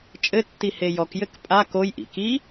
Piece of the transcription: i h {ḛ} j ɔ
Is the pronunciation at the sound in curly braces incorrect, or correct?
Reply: incorrect